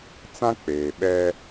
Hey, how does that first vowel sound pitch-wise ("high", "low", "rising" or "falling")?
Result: high